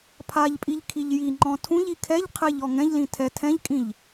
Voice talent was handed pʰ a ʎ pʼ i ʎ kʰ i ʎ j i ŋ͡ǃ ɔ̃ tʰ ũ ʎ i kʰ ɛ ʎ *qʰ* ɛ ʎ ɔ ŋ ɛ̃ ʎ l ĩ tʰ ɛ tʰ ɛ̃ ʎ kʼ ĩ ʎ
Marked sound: correct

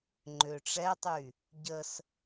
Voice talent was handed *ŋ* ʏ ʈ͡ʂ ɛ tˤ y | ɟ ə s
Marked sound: incorrect: ŋ͡ǃ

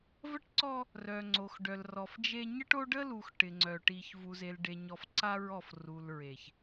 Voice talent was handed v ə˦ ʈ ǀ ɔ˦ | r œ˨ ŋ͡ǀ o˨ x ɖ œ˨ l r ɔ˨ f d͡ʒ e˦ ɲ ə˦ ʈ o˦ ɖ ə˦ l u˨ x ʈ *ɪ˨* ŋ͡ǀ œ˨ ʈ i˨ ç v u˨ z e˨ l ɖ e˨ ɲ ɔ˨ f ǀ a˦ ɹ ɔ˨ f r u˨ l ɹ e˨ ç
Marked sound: correct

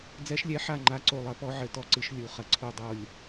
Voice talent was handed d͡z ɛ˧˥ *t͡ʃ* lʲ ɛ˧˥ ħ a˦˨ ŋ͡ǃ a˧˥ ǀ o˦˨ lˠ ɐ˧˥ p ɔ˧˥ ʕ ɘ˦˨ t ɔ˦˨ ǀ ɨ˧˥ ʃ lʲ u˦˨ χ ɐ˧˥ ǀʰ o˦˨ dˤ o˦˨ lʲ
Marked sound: incorrect: ʃ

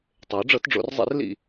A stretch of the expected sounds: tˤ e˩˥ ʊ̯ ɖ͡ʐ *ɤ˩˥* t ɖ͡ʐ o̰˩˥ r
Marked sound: correct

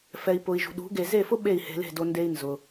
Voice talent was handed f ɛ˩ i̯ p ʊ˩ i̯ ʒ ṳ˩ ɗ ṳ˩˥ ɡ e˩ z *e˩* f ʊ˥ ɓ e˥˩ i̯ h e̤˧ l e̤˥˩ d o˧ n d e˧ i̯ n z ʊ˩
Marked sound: incorrect: e˥˩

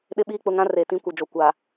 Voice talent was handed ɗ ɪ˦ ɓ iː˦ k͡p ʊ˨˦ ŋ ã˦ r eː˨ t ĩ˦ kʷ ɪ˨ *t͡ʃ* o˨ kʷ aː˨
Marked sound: incorrect: d͡ʒ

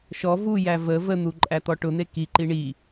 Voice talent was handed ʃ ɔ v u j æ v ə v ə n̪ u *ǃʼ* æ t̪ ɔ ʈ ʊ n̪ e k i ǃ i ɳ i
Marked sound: correct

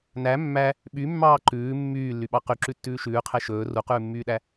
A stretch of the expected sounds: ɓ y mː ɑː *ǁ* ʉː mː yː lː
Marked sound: incorrect: ǃ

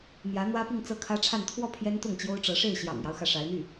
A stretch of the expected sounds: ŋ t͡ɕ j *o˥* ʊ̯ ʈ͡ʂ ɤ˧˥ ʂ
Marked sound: correct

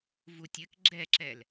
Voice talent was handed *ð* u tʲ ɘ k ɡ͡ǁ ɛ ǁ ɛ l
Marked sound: incorrect: v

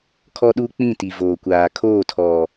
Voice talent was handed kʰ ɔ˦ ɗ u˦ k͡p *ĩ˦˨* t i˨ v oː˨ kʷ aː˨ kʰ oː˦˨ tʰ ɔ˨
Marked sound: correct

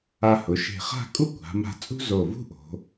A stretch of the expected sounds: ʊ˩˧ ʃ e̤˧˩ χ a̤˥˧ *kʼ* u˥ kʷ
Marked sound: correct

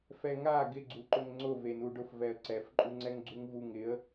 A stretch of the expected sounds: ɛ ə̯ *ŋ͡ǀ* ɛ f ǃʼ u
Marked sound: incorrect: ǀ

